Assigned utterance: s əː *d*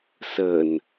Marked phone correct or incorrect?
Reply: incorrect